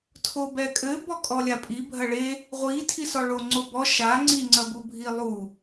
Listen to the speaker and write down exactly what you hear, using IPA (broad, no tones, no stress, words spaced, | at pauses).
tʰobɛkʼɘ bɔkʼɔlʲapʼi bʱɐɭe | ʁʷi tʰisɔɭo ŋ͡ǀobɔ ʃa ŋ͡ǀi ŋ͡ǀɐbubʱilˠu